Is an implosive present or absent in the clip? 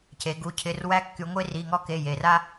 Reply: absent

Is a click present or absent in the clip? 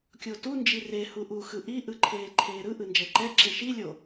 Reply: present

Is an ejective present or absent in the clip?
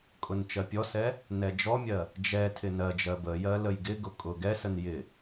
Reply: present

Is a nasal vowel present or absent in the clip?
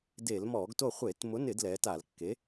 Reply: absent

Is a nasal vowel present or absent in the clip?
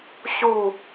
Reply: absent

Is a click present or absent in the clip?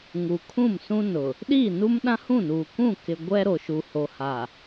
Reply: absent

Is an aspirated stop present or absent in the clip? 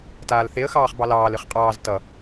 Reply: absent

